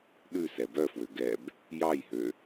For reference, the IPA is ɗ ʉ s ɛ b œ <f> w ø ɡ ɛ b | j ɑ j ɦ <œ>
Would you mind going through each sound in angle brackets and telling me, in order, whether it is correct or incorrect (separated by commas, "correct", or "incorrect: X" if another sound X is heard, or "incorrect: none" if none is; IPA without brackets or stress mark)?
correct, incorrect: ø